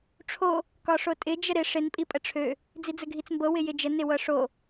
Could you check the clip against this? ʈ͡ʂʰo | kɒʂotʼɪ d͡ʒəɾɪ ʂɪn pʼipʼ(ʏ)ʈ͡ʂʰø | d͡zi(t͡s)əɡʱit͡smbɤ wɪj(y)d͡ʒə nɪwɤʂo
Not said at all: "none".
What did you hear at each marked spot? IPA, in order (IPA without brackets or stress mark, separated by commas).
ə, d͡z, ɪ